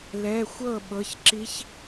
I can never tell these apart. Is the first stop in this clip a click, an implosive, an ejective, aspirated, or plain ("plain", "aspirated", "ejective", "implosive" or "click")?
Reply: implosive